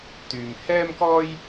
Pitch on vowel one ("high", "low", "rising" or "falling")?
low